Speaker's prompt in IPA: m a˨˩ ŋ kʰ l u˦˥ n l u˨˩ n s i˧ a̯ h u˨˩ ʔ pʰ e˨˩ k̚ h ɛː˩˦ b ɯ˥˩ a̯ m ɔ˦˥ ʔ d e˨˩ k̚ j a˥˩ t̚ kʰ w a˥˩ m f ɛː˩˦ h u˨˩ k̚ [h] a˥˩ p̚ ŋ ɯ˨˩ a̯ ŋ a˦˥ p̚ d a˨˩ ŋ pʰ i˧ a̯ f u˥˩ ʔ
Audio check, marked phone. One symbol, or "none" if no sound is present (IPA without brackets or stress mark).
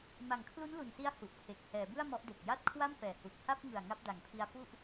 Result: h